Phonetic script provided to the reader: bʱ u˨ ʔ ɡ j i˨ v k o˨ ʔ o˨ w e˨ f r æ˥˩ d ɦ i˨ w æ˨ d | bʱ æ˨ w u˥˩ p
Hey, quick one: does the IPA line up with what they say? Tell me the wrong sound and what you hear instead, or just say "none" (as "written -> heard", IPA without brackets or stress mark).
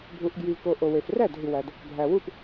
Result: none